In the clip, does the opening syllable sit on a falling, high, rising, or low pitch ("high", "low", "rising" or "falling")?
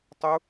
high